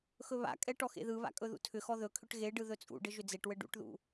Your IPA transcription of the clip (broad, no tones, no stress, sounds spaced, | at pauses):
x ɵ β a̰ kʼ ɛ ʈ ɔ x ḛ ð ɯ β a̰ kʼ ɵ ð ṵ tʰ ʏ x ɔ ð ɵ kʰ ʏ ʈ ɣ e ɖ ɯ ð ɵ t͡sʼ ṵ ɖ ɘ ʒ ʏ d͡z e ʈ w ɘ ɖ ṵ ʈ ð ṵ